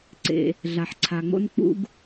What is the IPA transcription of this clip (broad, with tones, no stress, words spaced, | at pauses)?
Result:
ǀḛ˩ | ɮa˩ħǀʰa˩ŋ͡mo̰˥n k͡pṵ˦ɡ